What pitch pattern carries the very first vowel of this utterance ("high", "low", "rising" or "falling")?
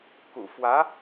low